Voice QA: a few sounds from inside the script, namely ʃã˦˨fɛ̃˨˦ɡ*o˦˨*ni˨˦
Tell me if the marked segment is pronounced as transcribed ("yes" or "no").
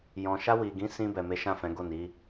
yes